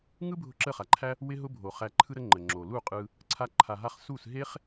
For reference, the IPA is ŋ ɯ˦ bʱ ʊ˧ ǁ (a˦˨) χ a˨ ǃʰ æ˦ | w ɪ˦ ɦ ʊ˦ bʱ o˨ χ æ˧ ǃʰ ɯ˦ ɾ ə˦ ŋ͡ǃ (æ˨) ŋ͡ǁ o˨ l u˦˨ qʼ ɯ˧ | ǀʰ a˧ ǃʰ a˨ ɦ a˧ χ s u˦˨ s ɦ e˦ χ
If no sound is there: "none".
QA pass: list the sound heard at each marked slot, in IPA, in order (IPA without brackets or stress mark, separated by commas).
ə˦˨, ə˨